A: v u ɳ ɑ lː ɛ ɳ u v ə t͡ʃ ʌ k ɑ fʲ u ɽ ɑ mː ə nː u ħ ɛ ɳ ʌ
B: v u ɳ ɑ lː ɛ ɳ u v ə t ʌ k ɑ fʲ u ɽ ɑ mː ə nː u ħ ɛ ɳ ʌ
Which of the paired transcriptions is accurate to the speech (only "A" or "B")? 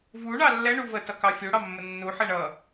B